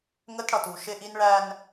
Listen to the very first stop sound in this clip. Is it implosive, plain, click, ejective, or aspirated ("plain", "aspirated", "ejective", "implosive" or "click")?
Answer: plain